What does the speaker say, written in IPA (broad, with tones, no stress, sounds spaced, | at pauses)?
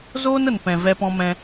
z oː˦ n ə˨ n p ɛ̃˨ v ɛ˧ p ɔ̃˧ m ɛ̃˧